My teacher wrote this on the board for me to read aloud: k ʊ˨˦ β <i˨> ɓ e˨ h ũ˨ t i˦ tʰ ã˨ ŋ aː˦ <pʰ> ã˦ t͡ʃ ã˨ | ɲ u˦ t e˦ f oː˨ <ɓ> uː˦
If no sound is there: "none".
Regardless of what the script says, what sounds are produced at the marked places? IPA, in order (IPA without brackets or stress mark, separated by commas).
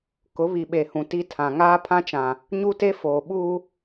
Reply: i˨, pʰ, ɓ